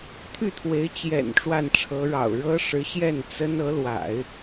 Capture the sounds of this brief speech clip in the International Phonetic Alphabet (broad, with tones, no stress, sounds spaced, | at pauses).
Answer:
t̪ʰ y˥˩ t̪ʰ w e˧˥ ɪ̯ t͡ɕ j ɛ̰˨˩ n ʈ͡ʂ w a˥˩ n ʈ͡ʂʰ ɤ˧˥ ɻ ɑ̰˨˩ ʊ̯ ɻ ɤ˥ ʂ ɻ̩˧˥ ɕ j ɛ˥˩ n t͡s ə˥ n ɤ˧˥ l w a̰˨˩˦ ɪ̯